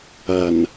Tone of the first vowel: low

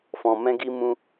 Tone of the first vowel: low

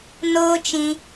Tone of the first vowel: high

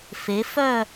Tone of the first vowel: rising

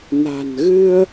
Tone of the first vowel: low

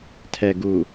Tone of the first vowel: low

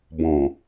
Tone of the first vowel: low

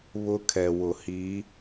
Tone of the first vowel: high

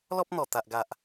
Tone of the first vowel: high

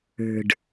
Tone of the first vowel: low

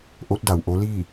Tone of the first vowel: rising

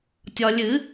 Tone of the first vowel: low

